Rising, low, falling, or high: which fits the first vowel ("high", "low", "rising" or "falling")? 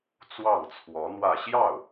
falling